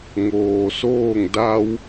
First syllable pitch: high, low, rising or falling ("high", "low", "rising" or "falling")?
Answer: low